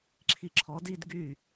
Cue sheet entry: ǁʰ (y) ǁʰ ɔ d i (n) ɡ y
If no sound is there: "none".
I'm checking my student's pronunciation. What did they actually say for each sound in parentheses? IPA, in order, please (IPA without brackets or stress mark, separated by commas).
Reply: i, d